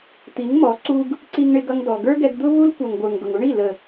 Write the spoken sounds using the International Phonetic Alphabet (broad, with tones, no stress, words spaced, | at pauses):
t̪i˨˦ŋmɔ˨˦ ǀu˧ɡ | ǀi˧ŋɳɪ˧ɡʌ˧ŋdɔ˨ ɡə˞˦ɡɛ˧ɡ d̪ʊ˦ vu˦lkʷʌ˨ŋɡʷə˞˨ŋɡʊ˨ŋ u˦ɳi˦˨ lə˨